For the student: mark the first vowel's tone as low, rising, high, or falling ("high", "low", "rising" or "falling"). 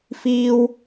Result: high